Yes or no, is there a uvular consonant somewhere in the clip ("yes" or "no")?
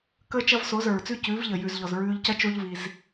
no